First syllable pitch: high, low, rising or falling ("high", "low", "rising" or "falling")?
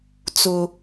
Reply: high